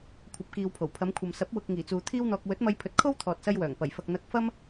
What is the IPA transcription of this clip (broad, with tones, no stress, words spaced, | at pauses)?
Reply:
kʷʰɐ˨˥p̚kiː˨wpʰo˨˩wpʰɐ˨˧m kʷʰɐ˨msɐ˨˥p̚ wʊ˨k̚ ŋiː˨˩t͡suː˨ t̪ʰiː˥wn̪ɔː˧k̚ wɵ˨˥t̚mɐ˧jpʰɵ˨˥t̚ kʰo˥w t̪ʰɔː˨t̚sɐ˧jwœː˨˩ŋ pɐ˨˩jfɐ˨k̚ n̪ɐ˧k̚fɐ˥m